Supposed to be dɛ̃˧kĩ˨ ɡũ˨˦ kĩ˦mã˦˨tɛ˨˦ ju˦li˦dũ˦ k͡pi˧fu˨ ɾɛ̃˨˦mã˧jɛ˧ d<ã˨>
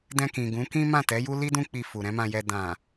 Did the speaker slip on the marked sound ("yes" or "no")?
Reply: no